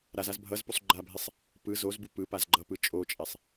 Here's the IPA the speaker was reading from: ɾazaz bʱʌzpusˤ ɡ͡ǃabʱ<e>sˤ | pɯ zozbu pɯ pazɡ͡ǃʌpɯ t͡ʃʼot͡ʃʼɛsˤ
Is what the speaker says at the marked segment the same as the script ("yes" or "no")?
yes